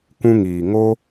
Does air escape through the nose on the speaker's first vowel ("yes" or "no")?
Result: yes